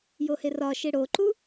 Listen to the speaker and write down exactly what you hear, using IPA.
joherɒʃe ɽoǃu

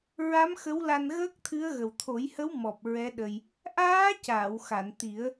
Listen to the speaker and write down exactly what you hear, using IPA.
ɹa˧˥mxə˧˥wla˧n ɣəː˦˥k̚t̪ʰɨ˧˥ə̯ ɣə˨˩wt̪ʰo˨˩˦jhə˧˥w mɔ˨˩p̚ ɹɛ˧˥ɗə˧j | ʔaː˧˥ caː˨˩˨wxa˨˩˨nt̪i˨˩˦ə̯

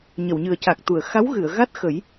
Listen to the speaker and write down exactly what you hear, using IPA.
ɲə˨˩˨wɲɨ˨˩ə̯ca˨˩k̚t̪u˨˩˨ə̯ xa˧˥wɣɨ˨˩˨ə̯ ɣa˦˥t̚ xə˨˩˦j

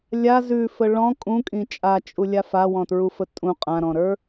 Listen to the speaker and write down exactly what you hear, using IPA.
lʲa zʉfə ɭɔ̃ kʼũkʼĩ t͡ʃʼat͡ʃʼulʲa fawɔ̃tɹufə tʼũ qʼãɾɔ̃ɾə˞

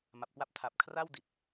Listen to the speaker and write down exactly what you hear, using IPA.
ma˨˩p̚kwa˥˩p̚ tʰa˨˩p̚kʰra˥˩w di˨˩t̚

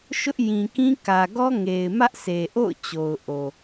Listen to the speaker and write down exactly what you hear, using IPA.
ʃʊ˦ʔjĩ˨kĩ˦kä˨ ɡɔ˦ŋe˨ɪ̯mä˦ʔ sʰe˨ʔo̰˦˨ʊ̯ t͡ɕo˨ʊ̯ʔo˨

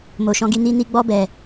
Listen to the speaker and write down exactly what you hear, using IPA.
mo˨ ʃɔ̃˧ɡi˧ ni˧ni˧ɡ͡bɔ˧bɛ˨

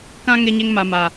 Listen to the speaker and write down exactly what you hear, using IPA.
kã˦ ŋe˦ɲe˦ŋ ma˨ma˨

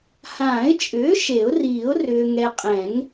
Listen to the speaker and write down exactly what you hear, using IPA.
hãː˨˩˦ɪ̯t͡ʃʼʏː˩˥ ʃe˨˩˦ʊ̯riː˨˩˦ʊ̯ rʏː˨ ŋɛ˨qʼɛ̃˨˩˦ŋ

